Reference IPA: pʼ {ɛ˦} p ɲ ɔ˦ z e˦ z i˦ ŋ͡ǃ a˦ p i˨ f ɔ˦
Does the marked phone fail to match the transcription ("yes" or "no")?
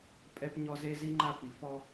no